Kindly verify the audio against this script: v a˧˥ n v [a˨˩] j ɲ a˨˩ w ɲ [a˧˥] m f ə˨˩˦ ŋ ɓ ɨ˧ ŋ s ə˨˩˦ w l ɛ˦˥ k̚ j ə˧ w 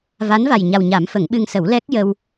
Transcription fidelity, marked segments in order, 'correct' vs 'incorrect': correct, incorrect

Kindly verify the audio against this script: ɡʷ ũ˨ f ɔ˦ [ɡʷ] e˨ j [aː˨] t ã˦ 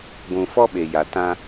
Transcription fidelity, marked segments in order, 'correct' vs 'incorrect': incorrect, incorrect

